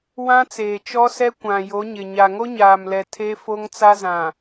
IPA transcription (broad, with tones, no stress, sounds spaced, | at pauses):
w ã˦ t͡s eː˨ t͡ʃ ɔ˦ s ɛ˦ kʷ ã˨ j o˨˦ ɲ ɪ˨ ɲ a˨ ŋ o˦ ɲ aː˨ m l ɛ˨ tʰ e˦ f o˦ ŋ t͡s a˦ z ã˨